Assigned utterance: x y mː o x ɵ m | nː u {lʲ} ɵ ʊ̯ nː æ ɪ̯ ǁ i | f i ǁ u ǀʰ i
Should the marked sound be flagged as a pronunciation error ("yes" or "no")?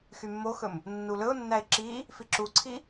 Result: yes